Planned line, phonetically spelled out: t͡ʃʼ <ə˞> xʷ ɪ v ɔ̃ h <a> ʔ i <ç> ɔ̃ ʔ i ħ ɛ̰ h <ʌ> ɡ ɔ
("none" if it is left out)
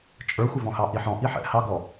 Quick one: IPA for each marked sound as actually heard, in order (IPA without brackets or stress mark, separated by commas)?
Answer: ə˞, ɑ, ħ, ɑ